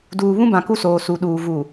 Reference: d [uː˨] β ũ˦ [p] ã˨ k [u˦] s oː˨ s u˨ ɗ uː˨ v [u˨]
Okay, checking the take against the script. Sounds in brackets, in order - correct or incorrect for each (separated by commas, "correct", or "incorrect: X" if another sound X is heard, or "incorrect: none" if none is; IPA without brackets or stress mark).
correct, incorrect: b, correct, correct